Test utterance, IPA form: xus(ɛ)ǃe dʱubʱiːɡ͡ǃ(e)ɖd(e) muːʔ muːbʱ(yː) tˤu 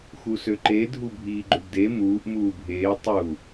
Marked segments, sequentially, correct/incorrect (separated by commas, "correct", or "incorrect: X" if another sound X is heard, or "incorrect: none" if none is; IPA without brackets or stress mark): incorrect: ø, incorrect: ø, correct, incorrect: eː